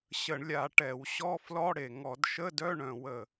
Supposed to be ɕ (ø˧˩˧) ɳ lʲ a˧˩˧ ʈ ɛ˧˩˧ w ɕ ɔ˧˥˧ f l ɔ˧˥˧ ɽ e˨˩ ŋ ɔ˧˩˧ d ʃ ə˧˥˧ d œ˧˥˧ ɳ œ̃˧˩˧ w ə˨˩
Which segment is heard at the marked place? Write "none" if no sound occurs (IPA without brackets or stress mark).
ə˧˩˧